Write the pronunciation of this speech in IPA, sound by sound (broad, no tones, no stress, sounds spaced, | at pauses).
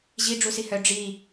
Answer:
ʑ i ɖ͡ʐ u s i h œ ɖ͡ʐ i